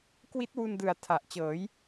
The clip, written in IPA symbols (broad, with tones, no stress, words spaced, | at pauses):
kwi˦˥t̚wu˧ndɯ˨˩a̯ tʰa˨˩ʔ t͡ɕɤː˩˦j